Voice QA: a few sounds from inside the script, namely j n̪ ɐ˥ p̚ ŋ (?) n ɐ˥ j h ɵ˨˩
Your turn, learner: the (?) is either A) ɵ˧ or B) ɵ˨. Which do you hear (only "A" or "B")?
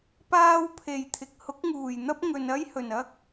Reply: B